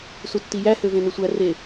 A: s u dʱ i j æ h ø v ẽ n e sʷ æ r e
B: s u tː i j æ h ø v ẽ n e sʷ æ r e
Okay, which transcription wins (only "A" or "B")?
B